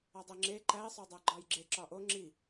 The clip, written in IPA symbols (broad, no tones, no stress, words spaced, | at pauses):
ɒdˤeŋ͡ǁe ǃæi̯sˤodˤæ ɡ͡ǃɒjɡ͡ǁe ǁɒʔo ŋ͡ǁi